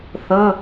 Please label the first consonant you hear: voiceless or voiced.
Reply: voiceless